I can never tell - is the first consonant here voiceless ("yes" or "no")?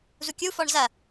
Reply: no